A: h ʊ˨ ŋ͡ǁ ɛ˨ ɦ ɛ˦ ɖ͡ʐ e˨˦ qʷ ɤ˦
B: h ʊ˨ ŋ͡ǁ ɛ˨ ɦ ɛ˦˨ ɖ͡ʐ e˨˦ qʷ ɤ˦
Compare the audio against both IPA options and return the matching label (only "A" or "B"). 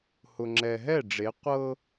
B